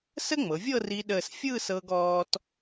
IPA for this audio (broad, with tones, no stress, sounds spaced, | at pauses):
s ə˥ ŋ͡m ɤ˩˧ vʲ ɤ˥˧ r i˧ ɗ əː˧˩ s fʲ ɯː˥˧ s ɤ˧ ɡ ɔː˧ t